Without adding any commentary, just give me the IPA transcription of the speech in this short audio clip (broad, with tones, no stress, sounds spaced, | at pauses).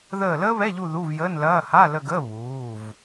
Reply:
ð əː˦˨ l əː˥ β ɛ˧˥˧ ʎ u˦˨ ð u˧˥˧ v j əː˧˥˧ n l ɐː˧˥˧ h a˧˥˧ l ə˦˨ ɡ əː˧˥˧ β uː˩˧˩ v